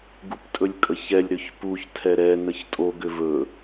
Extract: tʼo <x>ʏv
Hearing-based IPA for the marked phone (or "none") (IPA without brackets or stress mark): ɡ